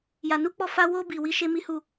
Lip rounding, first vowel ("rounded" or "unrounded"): unrounded